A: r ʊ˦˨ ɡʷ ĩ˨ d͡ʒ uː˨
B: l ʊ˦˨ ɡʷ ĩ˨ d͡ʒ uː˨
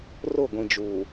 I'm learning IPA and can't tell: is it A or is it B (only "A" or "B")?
A